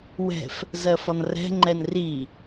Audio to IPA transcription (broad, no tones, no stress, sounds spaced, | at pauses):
w ɛ̤ f | z ɜ f ɒ n r ɛ̤ ŋ͡ǃ ɛ n r i